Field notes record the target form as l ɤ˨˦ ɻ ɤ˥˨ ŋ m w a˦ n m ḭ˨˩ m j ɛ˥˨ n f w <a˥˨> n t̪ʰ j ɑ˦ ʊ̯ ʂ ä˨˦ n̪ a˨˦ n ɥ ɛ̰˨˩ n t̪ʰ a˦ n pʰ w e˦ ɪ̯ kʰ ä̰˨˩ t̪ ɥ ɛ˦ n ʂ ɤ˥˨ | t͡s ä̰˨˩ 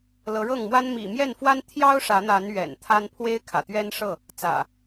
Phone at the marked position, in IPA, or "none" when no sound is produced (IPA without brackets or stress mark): a˦